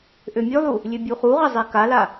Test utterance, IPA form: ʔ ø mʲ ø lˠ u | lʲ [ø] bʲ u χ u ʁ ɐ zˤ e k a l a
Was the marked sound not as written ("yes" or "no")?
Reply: no